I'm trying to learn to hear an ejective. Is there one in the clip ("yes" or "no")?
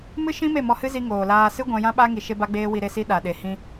no